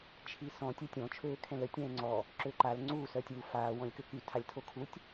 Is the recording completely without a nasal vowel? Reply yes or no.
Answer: no